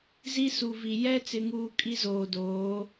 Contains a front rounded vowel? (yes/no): no